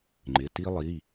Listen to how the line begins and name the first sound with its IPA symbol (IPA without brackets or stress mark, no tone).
ŋ͡ǃ